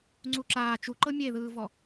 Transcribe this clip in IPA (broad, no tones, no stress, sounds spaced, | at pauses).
ŋ͡ǀ u ǁ aː t͡ʃ u ǃ ɤ mʲ e ð ɯː v ɔ